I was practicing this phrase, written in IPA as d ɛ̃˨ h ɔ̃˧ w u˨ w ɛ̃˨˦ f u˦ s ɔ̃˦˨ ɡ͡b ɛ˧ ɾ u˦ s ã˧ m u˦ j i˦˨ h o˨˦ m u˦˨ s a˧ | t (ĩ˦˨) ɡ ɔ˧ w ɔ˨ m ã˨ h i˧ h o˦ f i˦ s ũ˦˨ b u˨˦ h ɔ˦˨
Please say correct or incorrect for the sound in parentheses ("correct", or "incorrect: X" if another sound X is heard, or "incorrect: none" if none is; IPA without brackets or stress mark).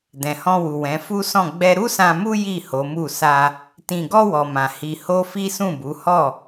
incorrect: ĩ˨